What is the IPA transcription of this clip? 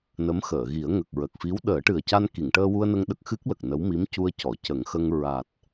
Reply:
nə˧˥mxəː˨˩˨ɣi˨˩˦ə̯ ŋə˨˩k̚ɹə˨˩k̚fi˧˥w ɗəː˨˩˦ʈɨ˨˩ə̯ca˧n ki˨˩˨ŋʈəː˧wu˧ə̯nə˧ŋ ɗə˦˥k̚xɨ˦˥k̚lə˨˩k̚ nə˧˥w mi˧˥m cu˧ə̯ cɔ˨˩˨cə˨˩˦ŋxə˧ŋ ɹa˨˩t̚

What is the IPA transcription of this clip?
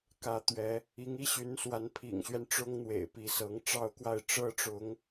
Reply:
kä˧˥t̪ɥɛ˧˥ | i˧˥ŋi˥ ɕy˧˥nswa˧˥n pʰḭ˨˩ŋɕɥɛ˦n ʈ͡ʂʊ˥ŋn̪wḛ˨˩ɪ̯ pi˧˥sɤ˧˥ŋʈ͡ʂɑ˥ʊ̯kwa˥˩ɪ̯ ʈ͡ʂɤ˥ʈ͡ʂʊ˧˥ŋ

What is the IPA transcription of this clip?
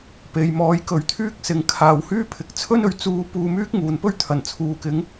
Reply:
pe˨jmɔː˨˥jkɵ˨˥ɥ t̪ʰyː˥k̚sɪ˨ŋ kʰaː˨whyː˥ pʰɪ˨k̚ t͡sʰɵ˥nɵ˨ɥ t͡suː˧ puː˧myː˥k̚ ŋuː˨n pɵ˥ɥt̪ʰɐ˨˩nt͡sʰuː˨kɪ˨˥ŋ

